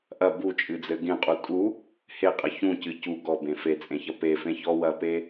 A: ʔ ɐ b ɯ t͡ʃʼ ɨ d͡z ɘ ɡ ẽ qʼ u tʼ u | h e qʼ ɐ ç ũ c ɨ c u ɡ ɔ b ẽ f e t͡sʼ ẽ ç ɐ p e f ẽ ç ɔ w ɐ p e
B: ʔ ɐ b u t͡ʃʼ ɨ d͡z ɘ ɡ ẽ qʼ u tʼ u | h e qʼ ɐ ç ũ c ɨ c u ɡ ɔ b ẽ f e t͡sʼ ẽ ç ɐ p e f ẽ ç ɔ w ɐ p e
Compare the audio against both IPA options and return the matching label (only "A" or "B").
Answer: B